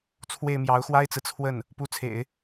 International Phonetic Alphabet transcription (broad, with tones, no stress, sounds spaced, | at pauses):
t͡sʰ w e˥˩ ɪ̯ m j ɑ˧˥ ʊ̯ x w a˥ ɪ̯ t͡s ɹ̩˨ t͡sʰ w ə˥˩ n | p u˧˥ t͡sʰ ḛ˨˩˦ ɪ̯